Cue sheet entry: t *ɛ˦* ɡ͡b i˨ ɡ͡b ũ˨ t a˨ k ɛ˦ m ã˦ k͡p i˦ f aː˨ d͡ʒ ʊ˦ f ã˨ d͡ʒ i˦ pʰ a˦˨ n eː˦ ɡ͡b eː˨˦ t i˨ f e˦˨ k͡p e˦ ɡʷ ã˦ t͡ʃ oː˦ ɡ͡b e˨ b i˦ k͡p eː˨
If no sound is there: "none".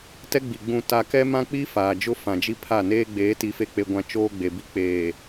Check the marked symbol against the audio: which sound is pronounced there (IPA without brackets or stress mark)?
ɛ˦